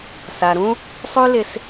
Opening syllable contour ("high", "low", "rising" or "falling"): low